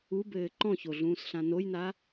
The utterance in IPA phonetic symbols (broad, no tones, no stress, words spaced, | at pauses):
ubɘː ǃɔ̃çoɮũːsɬã nojna